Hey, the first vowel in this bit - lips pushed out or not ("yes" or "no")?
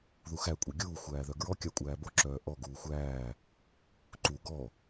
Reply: yes